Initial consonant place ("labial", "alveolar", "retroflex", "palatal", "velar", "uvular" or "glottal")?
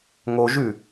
velar